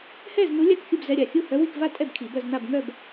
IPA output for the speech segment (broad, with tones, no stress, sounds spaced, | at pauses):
h ɛ˥˧ z n u˧˥ lʲ a˥˩ k xʲ u˥˧ b z ɛ˧˥˧ ɾʲ a˥˩ xʲ u˥˧ h œ˧˥ w i˥˧ k v a˥˧ tʼ ɛ˥˧ b kʰ i˨˩˦ b œ˥˧ z n a˥˧ b ŋ œ˥˧ b